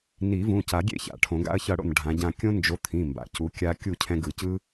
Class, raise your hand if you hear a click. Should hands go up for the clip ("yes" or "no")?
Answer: no